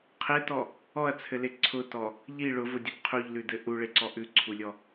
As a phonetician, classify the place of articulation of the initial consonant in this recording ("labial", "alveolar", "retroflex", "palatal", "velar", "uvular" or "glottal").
uvular